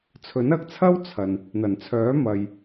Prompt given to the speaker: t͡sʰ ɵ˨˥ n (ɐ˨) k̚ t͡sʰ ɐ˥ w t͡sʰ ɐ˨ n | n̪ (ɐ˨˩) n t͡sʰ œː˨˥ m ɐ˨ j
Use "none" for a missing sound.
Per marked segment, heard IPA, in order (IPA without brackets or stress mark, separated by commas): ɐ˨, ɐ˨˩